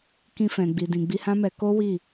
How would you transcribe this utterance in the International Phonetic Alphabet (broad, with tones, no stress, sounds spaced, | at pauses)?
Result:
k ĩ˧ f ɛ̃˨ ɡ͡b i˨ d ĩ˨ ɡ͡b i˧ h ã˦ m ɛ˧ k o˦ w i˦˨